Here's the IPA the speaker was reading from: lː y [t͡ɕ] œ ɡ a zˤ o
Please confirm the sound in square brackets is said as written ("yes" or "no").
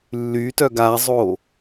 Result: no